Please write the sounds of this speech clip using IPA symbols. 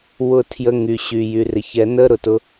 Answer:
w ʊ˨˩˦ tʰ j ə˩˧˩ ŋ y˩ ɕ y˩ j y˩ r ɪ˩ ç ɛ˨˩˦ n ə˧˥˧ ɾ ʊ˩ t ʊ˧

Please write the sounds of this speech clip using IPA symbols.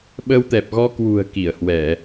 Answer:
ɓ ə˧ w t̪ ɛ˨˩ p̚ ɣ ɔ˧ k w ṳ˨˩ ə̯ k i˧˩ ə̯ h w ɛ˧˩˨

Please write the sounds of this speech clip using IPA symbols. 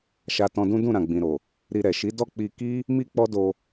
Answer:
ʃ a˧ t ɔ̃˧ d ũ˦ d ũ˦˨ ɾ ã˨ ɡ͡b ĩ˨ ɾ o˨ | ɾ i˧ ɾ ɛ˨ ʃ i˨˦ d ɔ˦˨ k͡p i˧ k i˦ | m i˦ k͡p ɔ˦ d o˧

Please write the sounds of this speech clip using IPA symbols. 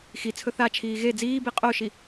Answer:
x i t͡sʰ ɵ θ a t͡ʃʰ iː ɣ e d͡z iː b i qʼ o ʃ i

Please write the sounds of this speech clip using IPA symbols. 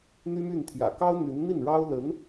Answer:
n̪ y˥ m y˥˩ n t̪ʰ j ä̰˨˩ k ɑ˥ ʊ̯ n̪ y˧˥ n n̪ i˥˩ n ɻ ɑ˥ ʊ̯ l ə˧˥ n

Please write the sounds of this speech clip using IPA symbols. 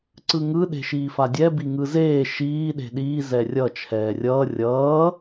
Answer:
ǀ ɯ ŋ ɯ ɗ e̤ ʃ iː f a dʲ ɛ b i ŋ ɯ z eː ʃ iː ɗ e̤ ɗ iː z ɛ rʲ ʌ t͡ʃʰ ɛː rʲ ʌː rʲ ʌː

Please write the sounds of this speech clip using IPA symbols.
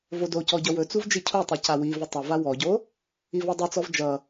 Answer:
v o d o c ɔ ɟ ʌ w ɵ t͡s u v d͡ʒ i cʰ u tˤ i c a w i v ɵ tˤ ʌ v a w ɔ ɟ o | i v ɔ dˤ o t͡s ɔ v d͡ʒ ʌ

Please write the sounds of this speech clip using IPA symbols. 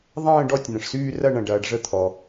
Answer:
ðˤ ə̃ː˦˨ ɖ ɔ˦˨ tʲ n ə̃˩ ʂ s yː˦˨ r ɐ˦˨ ɳ ɐ̃˩ ɖ ɐː˩ ɖ ʐ ə˦˨ t̪ʰ ɔ˩

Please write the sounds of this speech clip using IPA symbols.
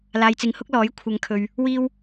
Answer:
l aː˨ j t͡s ɪ˨˧ ŋ h ʊ˥ k̚ l ɔː˨˥ j kʷʰ ɐ˨˧ ŋ kʰ ɵ˨ ɥ | w iː˥ w

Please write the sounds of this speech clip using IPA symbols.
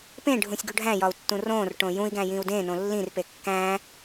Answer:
p ẽ ɖʱ ũ sʲ ɡ u ɖʱ æ̃ j ɒ u̯ tː ũ r õː r ʈ õ j ũ i̯ ɡ æ̃ j ĩ u̯ d ẽ n õ lː ĩ r p e kː æ̃

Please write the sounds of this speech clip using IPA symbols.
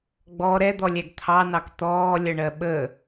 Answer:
ɡ͡b ɔ ɾ ɛ d̪ ɔ lʲ æ ɡ t̪ʰ ɑ n ɑ k t̪ ɔː lʲ ʌ ɳ ɜ ɓ ə

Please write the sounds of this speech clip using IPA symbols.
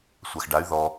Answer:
sʷ a x ɖ a y̯ ð ɔ

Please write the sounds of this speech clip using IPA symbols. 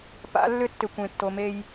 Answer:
p a̰˨˦ lː ʏ˦ tː ʏ˨ kʷ ẽ˨ tː o˨˦ m e˦ j

